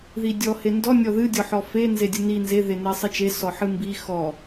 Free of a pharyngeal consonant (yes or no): no